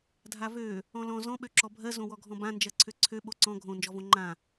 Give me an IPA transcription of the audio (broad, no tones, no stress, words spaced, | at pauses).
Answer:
dʱavø | ɔ̃lɔ̃ zɔ̃ ɓøǁɔbʱɜ zõwɔɡʱɔ̃bã nd͡ʒɜǀʰøǀʰø ɓoǀɔ̃ ɡʱõ nd͡ʒɔvõŋ͡ǃã